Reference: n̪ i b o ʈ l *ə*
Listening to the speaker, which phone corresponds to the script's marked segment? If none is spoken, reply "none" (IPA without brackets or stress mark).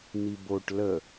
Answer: ə